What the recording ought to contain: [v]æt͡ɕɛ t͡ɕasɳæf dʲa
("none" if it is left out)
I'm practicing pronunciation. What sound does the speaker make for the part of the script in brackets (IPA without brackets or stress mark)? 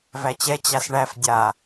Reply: v